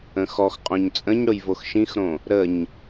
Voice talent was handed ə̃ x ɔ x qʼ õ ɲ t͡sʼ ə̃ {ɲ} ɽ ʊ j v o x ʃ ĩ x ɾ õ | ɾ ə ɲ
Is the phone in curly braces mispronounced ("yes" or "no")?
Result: no